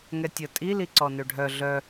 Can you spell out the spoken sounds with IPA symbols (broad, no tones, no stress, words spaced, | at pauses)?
ŋɛtʲə tʼi liǀɔnøɖʱœ ɮœ